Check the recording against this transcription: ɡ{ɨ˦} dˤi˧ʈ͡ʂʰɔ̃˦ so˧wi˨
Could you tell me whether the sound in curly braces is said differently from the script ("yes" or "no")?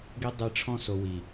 yes